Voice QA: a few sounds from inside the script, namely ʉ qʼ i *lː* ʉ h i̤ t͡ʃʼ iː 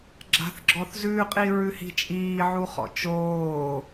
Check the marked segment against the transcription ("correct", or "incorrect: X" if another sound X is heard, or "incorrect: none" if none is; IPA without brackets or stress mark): incorrect: ɹ